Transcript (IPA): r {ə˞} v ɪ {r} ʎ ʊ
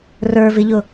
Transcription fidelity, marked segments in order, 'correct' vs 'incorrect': correct, incorrect: none

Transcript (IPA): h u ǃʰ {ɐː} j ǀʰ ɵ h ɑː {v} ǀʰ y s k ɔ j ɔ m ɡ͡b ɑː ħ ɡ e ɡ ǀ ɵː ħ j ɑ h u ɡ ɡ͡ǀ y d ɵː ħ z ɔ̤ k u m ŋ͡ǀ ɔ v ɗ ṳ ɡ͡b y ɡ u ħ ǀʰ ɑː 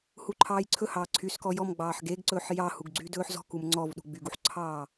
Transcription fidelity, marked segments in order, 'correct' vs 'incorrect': incorrect: ɑː, incorrect: none

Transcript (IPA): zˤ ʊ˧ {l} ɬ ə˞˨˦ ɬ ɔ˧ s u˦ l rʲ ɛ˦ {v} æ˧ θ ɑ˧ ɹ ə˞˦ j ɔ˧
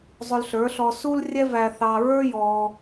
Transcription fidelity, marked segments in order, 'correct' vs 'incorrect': correct, correct

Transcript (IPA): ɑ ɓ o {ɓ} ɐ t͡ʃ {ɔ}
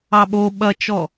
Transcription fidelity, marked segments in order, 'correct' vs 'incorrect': correct, correct

